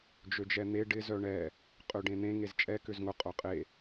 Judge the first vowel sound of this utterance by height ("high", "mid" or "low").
mid